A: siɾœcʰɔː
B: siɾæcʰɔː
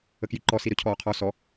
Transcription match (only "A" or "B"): A